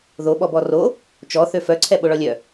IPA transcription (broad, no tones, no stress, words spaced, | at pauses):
ðo ɓɔbɔro | t͡ʃɔ θøfœǀʰɛ ɓoɭɔlʲœ